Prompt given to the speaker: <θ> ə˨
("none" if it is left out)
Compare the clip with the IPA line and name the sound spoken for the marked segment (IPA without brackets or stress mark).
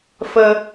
f